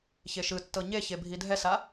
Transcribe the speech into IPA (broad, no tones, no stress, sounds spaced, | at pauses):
ç e ʃ ɯ tː ɤ ɲ e ç e bʱ i dʱ ɛ s a